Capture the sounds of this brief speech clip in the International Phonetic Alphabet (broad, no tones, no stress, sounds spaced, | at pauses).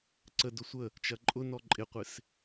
ǀ ə d ʊ sʷ ə | t͡ʃ ɐ ǃʼ ʊ n ɔ ǃʼ ɪ qʷ ɪ s